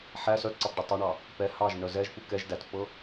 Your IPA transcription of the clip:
ħæ sœtǀɑpɖə tˤɑɳɑ | pɛ hɑʒnœ zɛʒpu kɛʒ dætpːɤ

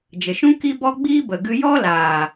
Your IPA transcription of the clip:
d͡ʒə˨ʃũ˦ ki˦bɔ˦ ɡ͡biː˦bə˨ɡɨ˧ jɔ˦laː˨

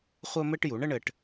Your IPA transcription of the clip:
χʷɜ˥mɘ˥ʈ ju˩˥ɳə˥ɳɘ˧ʈ

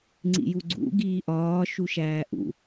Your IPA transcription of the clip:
ŋ͡ǀḭjuɡ͡ǀṵ ɡiːʔɒː ʃuʃæːʔṵ

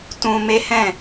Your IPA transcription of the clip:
tũ˧ me˦hɛ̃˦˨

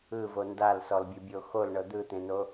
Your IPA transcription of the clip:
ɯvo ndalsɔlbʲɯbʲo xolɳɤ d̪ɯt̪ẽno

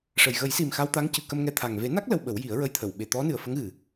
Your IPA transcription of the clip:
ʂə˨˩j ɣə˨˩˦jsi˨˩m xa˧wt̪a˧˥ŋ cɨ˨˩kə˧mŋɛ˧t̪ʰa˨˩ŋ ve˨˩˦na˦˥k̚ lə˧wɓə˨˩˦wji˨˩˦ə̯ ɹə˧jt̪ʰə˨˩˨w ɓe˨˩t̪ɔ˧˥nɨ˨˩ə̯fə˧˥ŋ ɣɨ˨˩

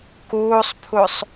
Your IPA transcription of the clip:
kuːsˤpʰusˤ

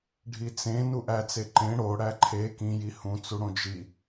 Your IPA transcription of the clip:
ɖʱit͡sẽ nuʔæt͡se ǃẽ ɽo ɽæǃʰe kĩ jihũt͡su ɽõd͡ʒi

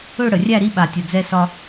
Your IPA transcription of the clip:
ɵ˥˧ɽə˩˧rʲæ˥˧ ɾi˥ɓa˧˩tʲə˧˩ d͡zɛ˧sɒ˧

